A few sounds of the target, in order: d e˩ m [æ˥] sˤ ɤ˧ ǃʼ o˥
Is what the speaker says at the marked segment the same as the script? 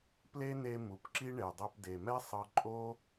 no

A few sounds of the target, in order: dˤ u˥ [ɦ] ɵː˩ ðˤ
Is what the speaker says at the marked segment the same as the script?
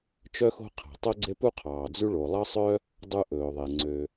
no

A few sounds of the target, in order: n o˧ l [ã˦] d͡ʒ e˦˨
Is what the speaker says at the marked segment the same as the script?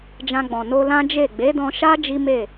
yes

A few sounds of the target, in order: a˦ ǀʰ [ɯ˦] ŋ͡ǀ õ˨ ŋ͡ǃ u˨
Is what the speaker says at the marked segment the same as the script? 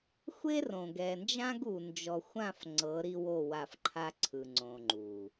no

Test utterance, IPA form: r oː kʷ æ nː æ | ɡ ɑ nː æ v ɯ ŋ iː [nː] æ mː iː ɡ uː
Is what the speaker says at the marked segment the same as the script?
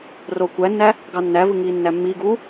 yes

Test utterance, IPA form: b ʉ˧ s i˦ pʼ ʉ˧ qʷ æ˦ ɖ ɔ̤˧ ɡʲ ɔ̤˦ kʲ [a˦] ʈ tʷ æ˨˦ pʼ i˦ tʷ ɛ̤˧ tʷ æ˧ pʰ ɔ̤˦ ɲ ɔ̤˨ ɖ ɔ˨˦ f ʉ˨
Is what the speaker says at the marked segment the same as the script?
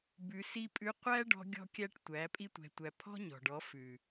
no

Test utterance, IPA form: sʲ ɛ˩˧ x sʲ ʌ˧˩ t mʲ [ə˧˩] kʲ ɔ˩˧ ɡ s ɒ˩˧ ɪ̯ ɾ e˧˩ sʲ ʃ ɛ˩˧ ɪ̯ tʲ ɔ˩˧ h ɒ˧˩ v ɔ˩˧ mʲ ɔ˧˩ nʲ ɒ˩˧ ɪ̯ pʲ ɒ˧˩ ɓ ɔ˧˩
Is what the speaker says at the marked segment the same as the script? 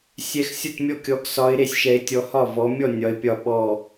no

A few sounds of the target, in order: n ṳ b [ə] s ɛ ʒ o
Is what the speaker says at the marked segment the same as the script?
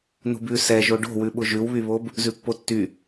no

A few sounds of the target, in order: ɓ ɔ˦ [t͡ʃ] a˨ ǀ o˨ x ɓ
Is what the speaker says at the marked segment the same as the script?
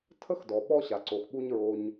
no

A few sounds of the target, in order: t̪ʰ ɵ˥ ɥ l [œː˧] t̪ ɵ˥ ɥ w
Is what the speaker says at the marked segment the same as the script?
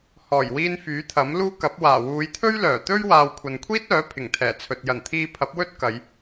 no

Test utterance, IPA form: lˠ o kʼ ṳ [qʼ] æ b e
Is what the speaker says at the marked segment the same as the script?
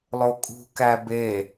no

